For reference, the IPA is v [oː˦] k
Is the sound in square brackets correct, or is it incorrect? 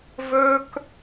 incorrect